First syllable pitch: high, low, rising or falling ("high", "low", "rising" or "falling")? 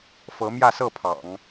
rising